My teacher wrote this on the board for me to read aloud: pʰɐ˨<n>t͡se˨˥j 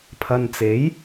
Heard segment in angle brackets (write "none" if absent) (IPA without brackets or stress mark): n